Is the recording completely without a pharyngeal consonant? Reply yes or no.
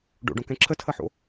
no